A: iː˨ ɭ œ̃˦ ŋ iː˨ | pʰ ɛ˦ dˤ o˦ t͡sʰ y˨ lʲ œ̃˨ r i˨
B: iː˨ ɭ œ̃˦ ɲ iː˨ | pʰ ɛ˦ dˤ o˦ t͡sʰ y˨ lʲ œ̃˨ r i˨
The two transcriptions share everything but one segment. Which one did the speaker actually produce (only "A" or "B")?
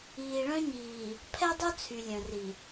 B